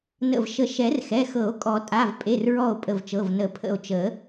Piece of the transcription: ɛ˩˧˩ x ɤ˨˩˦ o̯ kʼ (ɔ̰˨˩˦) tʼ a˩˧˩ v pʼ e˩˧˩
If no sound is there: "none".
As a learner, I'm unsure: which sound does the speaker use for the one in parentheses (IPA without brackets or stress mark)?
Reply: ɔ˨˩˦